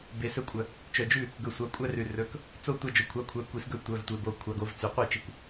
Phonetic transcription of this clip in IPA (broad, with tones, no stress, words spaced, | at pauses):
be˩sɵ˧kʷʼœ˩ | t͡ʃœ˩d͡ʒʉ˥˩ | ɡɵ˩ sʷɑ˩˧ kʷʼæ˧rʉ˩ rɵ˩˧˩k | t͡so˥˩tʷɑ˧ d͡ʒo˩kʷʰɑ˩˧˩kʷʰæ˩˧˩ kʷi˩˧sɡɵ˥˩ tʷœ˩˧˩vtʷe˩˧˩bo˩˧˩ kʷʰɑ˩˧˩ɡo˩˧v t͡sʉ˩ qʷi˥˩t͡ʃi˧kʷ